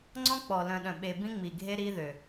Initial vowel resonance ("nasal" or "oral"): nasal